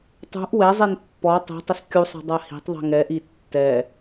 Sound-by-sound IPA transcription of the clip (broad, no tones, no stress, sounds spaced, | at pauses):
tˤ ṳ ʔ w ɛ zˤ e n pː ɔ tˤ i̤ tˤ ɪ s kʲ u sˤ e̤ dˤ a h i̤ tˤ ðˤ i̤ ŋ ɛ ʔ i tː ɛ